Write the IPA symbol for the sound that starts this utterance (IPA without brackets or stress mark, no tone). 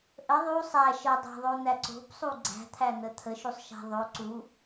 ʔ